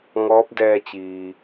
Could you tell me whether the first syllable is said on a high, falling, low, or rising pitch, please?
rising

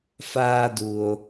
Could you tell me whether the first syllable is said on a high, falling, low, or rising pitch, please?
high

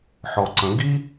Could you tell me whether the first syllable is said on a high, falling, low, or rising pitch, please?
low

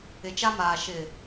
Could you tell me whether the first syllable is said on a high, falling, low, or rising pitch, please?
low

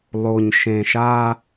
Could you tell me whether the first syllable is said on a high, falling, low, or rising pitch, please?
low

